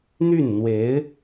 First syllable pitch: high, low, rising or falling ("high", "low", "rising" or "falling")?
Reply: falling